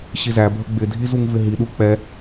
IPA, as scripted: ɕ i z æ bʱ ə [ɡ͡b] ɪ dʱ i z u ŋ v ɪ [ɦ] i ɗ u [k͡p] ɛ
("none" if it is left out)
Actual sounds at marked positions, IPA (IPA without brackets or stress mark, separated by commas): ɡ͡b, ɦ, k͡p